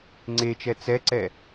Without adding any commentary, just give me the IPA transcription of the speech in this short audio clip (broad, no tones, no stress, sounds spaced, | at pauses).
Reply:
ŋ͡ǀ e t͡ʃ ɛ t͡s ɛ ǀ ɛ